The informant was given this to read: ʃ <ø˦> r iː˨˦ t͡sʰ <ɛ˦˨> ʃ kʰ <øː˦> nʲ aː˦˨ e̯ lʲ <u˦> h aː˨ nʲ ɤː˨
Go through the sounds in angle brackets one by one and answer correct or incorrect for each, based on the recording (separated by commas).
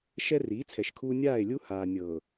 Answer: incorrect, incorrect, incorrect, correct